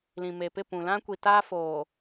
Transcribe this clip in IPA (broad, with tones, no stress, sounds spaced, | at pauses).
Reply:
l ĩ˨ m e˨ p ɪ˦˨ p ũ˨ l ã˦ kʷ i˨ t aː˦ f oː˨